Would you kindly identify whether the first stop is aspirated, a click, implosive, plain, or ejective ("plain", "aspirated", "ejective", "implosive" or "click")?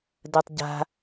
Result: plain